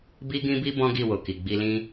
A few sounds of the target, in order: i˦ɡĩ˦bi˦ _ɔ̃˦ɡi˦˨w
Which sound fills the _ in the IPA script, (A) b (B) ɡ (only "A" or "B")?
A